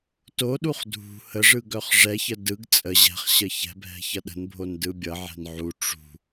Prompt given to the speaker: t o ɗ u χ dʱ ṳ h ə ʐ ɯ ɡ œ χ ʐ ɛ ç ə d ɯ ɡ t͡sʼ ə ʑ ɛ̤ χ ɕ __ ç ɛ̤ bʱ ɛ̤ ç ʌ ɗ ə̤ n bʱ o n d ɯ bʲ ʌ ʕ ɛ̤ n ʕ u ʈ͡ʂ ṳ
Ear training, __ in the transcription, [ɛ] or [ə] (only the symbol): ə